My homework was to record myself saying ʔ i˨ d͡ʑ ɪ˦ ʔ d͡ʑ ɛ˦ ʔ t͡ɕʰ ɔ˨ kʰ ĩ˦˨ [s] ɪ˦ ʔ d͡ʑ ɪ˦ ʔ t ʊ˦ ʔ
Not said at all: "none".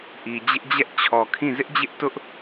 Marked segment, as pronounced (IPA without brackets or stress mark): z